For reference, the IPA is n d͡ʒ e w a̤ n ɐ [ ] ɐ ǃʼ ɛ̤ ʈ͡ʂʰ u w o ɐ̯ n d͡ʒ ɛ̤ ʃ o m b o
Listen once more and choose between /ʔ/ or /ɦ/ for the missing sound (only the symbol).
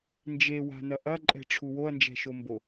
ʔ